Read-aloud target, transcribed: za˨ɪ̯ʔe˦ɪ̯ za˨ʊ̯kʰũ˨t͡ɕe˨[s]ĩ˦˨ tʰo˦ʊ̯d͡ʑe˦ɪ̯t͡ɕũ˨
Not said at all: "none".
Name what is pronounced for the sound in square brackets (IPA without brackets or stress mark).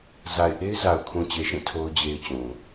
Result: ʃ